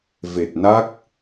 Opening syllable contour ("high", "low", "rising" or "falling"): low